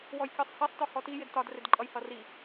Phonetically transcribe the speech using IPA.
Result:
w ɔ j kʲ ɔ sˤ h i sˤ t ɔ h ɔ t i j ɪ d t ɒ d r ɪ d ǃʼ ʌ j h ʌ r i

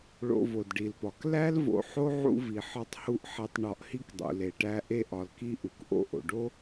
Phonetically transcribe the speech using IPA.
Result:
ɭ o̰˨ v o˩ d ɖ i˩ l p ɒ˩ k l æ˥ l v o̰˨ ħ o˥ ʕ ṵ˦ v i˩ ħ ɒ˦ tˤ h u˦ ʔ ħ e˨ tˤ ɳ ɒ˨ ʔ h i˦ k dˤ ṵ˩ l e˩ ʈ æ˦ ʔ e˦ ʔ ɒ˨ l k i˦ ʔ u˩ k ʔ o̰˥ ʔ o̰˩ ɖ o˥

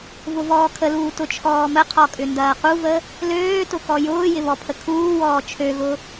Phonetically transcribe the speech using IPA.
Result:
v ʊ v ɔː kʰ ə l uː t ʊ t͡ʃʰ ɔː m ə qʰ ɔ kʼ ʏ n d ɐː q u v ə | l øː t ʊ k ɔ j ʊː j ɪ β ɔ pʰ ə kʰ uː w ɔː t͡ʃʰ ø ɣ ʊ

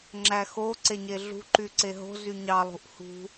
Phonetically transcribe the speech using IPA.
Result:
ŋ͡ǁ æ x o ǀ e ɲ e ɮ ṳ ǃ y ǀ e ɦ o̤ z y ɲ ɑ lˠ ṳ ʔ h ṳ

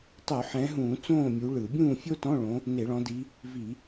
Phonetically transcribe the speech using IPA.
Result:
tˤ u˧˩˧ ħ ɛ̃˨˦ ɦ ũː˧˩˧ t͡s õː˥˨ mʲ u˨˦ ɭ ɯ˧˩˧ bʲ ũː˥˨ fʲ o˥ t ɔ̃˧˥˧ ɭ õ˨˦ | n e˧˩˧ ɭ ɔ̃˨˦ d i˨˦ | v i˧˩˧

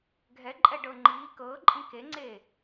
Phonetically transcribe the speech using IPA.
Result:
ɡʱ ɛ ǃʼ ɛ ɖ ɤ ŋ͡ǃ iː k ɤː ǃʼ ĩ k e ŋ͡ǀ eː

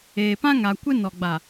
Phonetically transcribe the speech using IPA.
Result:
eː˨ p ã˦ ŋ a˨ kʷ ɪ˦ n ɔ˨ ɡ͡b a˨

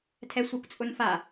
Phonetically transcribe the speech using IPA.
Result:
tʰ ɛ sʷ ɛ kʷ t͡sʼ ʊ n f a

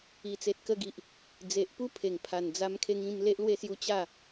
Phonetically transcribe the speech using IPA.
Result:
i˨˩ t͡s e˨ t̚ k ə˧ ɡ i˨ ʔ | d͡z e˨ ʔ p u˦ pʰ e˨˩ ŋ pʰ a˨˩ n d͡z a˧ m kʰ e˧ ŋ ĩ˧ m l e˦ ʔ l w e˥˧ s j u˦ t͡ɕ a˥˧

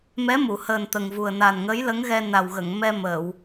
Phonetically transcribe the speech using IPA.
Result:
m ɛ˧˥ m u˨˩˨ h əː˨˩ n t̪ ə˨˩ ŋ v u˨˩ ə̯ n a˨˩ n ŋ ə˧˥ j l ə˧˥ ŋ ɣ ɛ˧ n a˨˩ w ɣ ə˨˩˨ ŋ m ɛ˧ m əː˨˩˨ w

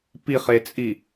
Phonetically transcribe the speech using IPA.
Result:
p i χ e t͡sʼ i

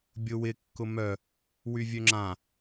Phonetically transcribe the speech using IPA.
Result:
bʲ ʊ w ɪ kː ʊ m œ | w y vʲ ø ŋ͡ǁ ã

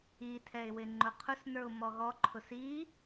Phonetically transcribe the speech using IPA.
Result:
i tʰ ɛ ɪ̯ w ɪ ŋ͡ǃ ʊ qʰ ʊ s n ə˞ ʊ̯ m ɔ ɣ ɔ ǃʰ ʊ s i

